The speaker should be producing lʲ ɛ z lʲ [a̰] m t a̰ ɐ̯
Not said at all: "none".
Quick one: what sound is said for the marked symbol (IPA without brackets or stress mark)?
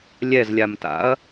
a